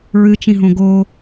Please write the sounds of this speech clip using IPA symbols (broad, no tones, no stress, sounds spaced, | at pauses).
ɹ ɨ t͡ʃ ĩ ɦ õ ɡ o